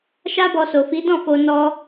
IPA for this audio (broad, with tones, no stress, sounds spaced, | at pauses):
ʃ a˦ b ɔ˧ s o˨ f i˨˦ d ɔ̃˦˨ f o˧ n ɔ˧